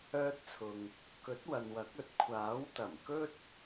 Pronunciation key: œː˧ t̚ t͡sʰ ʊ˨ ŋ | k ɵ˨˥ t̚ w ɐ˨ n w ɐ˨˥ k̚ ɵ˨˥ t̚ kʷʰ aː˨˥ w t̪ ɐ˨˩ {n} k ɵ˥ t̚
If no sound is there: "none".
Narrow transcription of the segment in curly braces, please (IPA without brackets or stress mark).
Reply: m